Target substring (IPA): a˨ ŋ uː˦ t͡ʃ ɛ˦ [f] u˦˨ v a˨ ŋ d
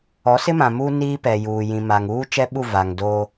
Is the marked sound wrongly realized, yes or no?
yes